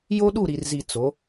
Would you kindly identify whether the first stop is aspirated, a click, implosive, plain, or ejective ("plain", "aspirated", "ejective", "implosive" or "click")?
implosive